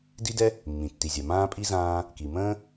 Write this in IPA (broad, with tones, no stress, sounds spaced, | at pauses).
d i˥ d ɛ˥ | mː ĩ˩ tː i˩ zʲ a˩ m ãː˥ pʼ i˥ z ãː˥ | k i˩ m ə̃ː˥